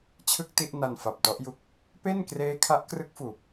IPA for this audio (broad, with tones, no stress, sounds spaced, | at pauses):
t͡ɕʰ ɯ˥˩ k̚ t i˥˩ ʔ n a˧ n f a˨˩ p̚ t ɔ˦˥ ʔ j u˦˥ k̚ | p e˥˩ n k r eː˦˥ kʰ a˦˥ ʔ k r ɯ˦˥ k̚ f uː˨˩ p̚